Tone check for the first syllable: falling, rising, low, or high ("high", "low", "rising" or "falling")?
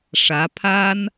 rising